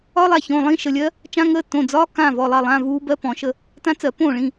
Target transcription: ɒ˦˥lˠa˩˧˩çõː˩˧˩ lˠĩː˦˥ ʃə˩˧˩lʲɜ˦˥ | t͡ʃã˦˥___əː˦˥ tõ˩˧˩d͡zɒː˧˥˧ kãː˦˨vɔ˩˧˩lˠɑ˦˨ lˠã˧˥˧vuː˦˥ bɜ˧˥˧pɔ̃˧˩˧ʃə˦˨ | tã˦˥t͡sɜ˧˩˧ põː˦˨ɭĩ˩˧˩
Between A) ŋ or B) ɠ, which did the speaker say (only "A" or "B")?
A